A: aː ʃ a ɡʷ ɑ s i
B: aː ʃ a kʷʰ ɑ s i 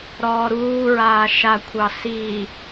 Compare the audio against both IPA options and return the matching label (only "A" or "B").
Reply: B